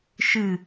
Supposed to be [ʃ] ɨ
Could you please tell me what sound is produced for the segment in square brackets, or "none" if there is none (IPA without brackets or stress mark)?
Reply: ʃ